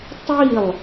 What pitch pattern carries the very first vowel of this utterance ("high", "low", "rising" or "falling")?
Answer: falling